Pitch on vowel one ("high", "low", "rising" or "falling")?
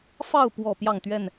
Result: falling